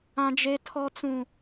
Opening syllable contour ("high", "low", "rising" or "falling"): high